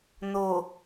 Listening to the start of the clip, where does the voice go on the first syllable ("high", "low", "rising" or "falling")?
low